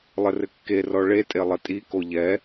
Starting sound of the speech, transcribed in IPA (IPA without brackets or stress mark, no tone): lˠ